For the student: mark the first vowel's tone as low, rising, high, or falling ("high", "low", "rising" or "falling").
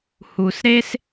low